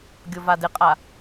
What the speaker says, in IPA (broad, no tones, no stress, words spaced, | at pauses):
ɡʲovadɪqʼa